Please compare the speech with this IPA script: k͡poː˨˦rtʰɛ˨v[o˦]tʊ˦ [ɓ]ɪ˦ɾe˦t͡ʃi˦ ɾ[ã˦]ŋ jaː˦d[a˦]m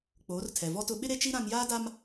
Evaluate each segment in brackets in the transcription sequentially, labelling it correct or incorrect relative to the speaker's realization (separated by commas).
incorrect, correct, correct, correct